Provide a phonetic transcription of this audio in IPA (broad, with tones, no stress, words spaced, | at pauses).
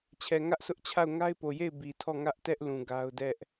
t͡ɕʰɛ˨ŋä˦ʔsʰʊ˦ʔt͡ɕʰa˦˨ʊ̯ ŋa˦ɪ̯po˨je˦˨ɪ̯ bi˨tʰɔ˦˨ ŋä˦ʔtɛ˦ʔ lũ˨ɡa˦ʊ̯ dɛ˦ʔ